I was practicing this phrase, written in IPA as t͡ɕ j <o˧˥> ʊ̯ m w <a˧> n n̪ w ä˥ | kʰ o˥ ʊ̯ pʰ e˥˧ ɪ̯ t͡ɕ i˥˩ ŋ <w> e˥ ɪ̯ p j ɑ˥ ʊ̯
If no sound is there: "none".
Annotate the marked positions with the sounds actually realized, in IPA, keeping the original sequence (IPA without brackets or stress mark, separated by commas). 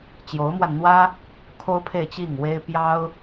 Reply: o˧˥, a˧, w